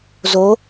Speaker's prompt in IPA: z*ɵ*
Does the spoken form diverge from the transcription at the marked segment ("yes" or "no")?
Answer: yes